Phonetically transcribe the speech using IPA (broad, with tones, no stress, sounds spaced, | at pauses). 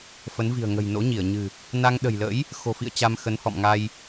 f ə˨˦ n v i̤˨˩ ə̯ ŋ ə̤˨˩ j n o̰˧˥ ɲ i˧˩ ə̯ ɲ ɨ̤˨˩ | n a˧ ŋ ɗ ə̤˨˩ j l ə̰˧˥ j | x o̤˨˩ f ḭ˧˨ ə̯ t͡ɕ a˧ m x ə˨˦ n h ɔ̰˧˨ m ŋ a˧ j